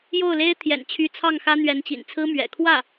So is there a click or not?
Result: no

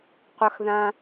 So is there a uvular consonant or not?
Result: yes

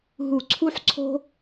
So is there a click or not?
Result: yes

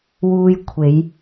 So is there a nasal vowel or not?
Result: no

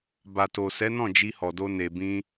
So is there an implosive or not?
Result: no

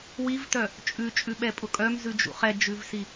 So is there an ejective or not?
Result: yes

